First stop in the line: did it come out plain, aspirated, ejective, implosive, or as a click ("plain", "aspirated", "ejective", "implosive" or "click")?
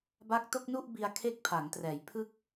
plain